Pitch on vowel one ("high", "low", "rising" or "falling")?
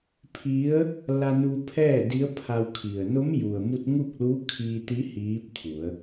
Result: rising